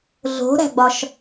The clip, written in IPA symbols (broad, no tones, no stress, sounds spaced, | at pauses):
ɮ o̤ ɾ æ̤ ɡ͡b ɒ ʃ